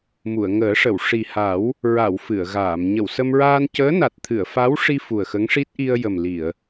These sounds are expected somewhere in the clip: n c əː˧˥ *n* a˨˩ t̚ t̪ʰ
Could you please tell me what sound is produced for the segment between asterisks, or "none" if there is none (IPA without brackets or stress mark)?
n